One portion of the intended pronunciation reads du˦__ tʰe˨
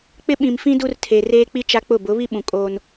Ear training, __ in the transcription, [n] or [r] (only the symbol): r